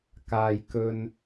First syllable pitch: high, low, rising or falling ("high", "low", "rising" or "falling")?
low